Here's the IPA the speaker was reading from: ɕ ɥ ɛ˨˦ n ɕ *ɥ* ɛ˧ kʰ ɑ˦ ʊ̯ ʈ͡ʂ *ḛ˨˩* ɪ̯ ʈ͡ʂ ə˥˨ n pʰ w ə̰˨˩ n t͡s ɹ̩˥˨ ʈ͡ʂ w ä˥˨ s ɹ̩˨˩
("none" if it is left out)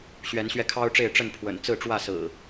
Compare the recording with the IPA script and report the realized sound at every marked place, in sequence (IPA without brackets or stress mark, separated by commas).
ɥ, e˥˨